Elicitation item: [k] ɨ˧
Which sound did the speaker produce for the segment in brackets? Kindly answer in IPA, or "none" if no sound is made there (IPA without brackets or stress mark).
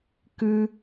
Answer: k